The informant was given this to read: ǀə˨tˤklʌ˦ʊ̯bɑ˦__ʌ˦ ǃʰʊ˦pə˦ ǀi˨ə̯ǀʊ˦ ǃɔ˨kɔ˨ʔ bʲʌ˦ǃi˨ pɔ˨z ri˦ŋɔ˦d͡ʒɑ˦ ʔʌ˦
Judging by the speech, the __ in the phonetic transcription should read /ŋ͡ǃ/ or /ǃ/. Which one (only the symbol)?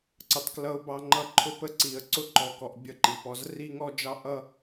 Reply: ŋ͡ǃ